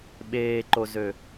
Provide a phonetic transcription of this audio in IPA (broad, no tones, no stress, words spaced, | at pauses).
ɓeːǃozø